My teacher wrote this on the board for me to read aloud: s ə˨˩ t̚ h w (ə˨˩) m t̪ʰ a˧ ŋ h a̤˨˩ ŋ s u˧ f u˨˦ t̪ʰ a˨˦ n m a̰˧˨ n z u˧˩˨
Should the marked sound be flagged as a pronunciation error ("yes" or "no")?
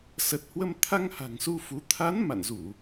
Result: yes